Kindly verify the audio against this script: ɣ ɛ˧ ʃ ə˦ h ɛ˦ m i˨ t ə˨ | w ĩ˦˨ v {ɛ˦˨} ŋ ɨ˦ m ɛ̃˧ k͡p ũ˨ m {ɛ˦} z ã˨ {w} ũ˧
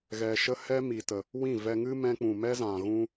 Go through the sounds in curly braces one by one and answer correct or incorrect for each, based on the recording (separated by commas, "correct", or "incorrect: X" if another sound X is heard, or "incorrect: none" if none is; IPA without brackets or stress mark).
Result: incorrect: ɛ˧, correct, incorrect: ɣ